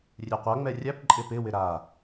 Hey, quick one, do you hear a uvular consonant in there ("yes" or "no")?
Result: yes